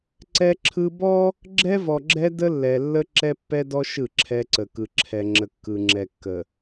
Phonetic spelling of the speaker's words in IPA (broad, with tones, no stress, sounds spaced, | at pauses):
ǀ ɛ˦ ǁʰ ɯ˦ b ɔ˦ | ɡ͡ǁ ɛ˦ v ɔ˨ ɡ͡ǁ ɛ˦ d ə˦ lː ɛ˨ lː ə˦ ǁ ɛ˦ pː ɛ˦ d ɔ˦ ʃ ɯ˦˨ ǁʰ ɛ˦ ǀ ə˨ k ɯ˨ ǁʰ ɛ˨ ŋ͡ǁ ə˨ kː ɯ˨ ŋ͡ǁ ɛ˨ kː ə˨